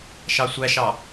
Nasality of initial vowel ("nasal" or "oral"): oral